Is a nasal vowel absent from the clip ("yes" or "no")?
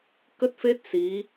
yes